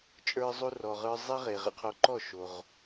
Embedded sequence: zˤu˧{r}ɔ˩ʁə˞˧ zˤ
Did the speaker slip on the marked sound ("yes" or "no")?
no